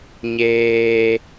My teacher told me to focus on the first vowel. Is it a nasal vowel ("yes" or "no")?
no